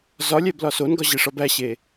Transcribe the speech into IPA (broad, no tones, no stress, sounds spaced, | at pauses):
z ɒ lʲ æ b l ɒ s o n ɡ ɒ ʑ e ʂ ɒ b æ ɕ e